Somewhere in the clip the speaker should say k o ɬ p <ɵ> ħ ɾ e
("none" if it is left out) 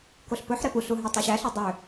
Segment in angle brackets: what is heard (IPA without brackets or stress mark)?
ɵ